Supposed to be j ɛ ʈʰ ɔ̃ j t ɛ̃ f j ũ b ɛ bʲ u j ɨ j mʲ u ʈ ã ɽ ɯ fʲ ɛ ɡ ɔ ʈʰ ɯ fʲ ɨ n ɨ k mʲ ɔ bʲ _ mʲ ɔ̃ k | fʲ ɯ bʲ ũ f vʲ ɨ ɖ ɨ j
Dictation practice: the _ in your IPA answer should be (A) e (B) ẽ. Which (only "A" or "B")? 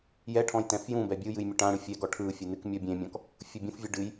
B